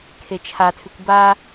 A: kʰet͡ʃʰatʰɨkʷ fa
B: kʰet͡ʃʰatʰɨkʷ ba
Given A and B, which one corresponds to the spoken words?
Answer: B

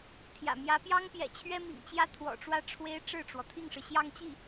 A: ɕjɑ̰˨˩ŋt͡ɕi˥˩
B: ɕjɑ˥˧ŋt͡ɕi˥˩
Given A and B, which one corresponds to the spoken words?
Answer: B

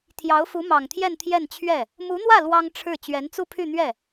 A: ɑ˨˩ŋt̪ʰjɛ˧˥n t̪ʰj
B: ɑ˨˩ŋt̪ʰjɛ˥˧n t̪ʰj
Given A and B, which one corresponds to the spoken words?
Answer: B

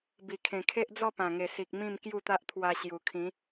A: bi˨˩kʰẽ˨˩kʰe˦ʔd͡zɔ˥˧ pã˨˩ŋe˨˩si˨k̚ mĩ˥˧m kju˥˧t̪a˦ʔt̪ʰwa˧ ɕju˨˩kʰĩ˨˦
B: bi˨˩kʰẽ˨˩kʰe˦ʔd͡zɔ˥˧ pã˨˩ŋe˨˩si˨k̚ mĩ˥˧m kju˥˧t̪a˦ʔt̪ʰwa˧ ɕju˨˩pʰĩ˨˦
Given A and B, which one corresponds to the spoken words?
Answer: A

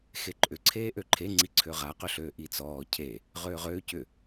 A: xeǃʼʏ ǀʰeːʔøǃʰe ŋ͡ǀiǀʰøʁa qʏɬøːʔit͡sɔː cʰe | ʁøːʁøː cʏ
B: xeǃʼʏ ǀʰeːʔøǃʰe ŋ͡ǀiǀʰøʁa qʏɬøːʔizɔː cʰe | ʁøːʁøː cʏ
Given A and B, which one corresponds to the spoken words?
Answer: A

